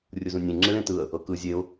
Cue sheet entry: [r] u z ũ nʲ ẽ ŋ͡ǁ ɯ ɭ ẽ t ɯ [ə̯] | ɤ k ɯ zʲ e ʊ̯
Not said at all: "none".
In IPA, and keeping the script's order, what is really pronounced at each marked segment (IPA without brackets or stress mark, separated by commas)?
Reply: rʲ, ə̯